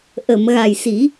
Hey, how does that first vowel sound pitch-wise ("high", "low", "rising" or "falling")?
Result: low